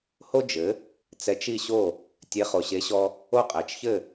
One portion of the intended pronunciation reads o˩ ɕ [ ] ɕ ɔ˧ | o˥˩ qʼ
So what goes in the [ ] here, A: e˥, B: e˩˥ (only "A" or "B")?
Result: B